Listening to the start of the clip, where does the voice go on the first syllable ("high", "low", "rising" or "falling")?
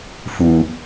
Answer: low